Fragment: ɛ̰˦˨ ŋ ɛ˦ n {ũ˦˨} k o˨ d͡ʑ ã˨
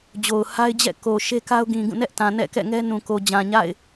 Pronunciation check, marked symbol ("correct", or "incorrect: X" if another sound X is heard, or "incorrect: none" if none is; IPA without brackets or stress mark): incorrect: ũ˨